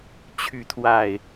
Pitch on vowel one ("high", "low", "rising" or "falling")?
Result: rising